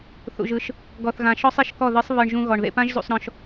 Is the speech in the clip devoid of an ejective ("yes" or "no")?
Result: yes